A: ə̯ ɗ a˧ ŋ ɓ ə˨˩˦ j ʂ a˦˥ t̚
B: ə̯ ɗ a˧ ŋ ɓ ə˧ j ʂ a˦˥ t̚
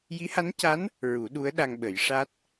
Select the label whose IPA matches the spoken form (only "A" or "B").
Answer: A